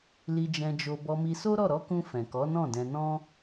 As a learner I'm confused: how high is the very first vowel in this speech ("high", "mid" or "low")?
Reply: high